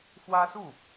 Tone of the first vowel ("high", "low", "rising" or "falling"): high